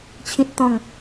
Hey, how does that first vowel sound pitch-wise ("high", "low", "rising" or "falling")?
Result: high